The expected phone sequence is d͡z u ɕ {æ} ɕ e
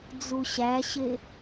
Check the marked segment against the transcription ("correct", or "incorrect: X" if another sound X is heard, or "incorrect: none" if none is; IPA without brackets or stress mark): correct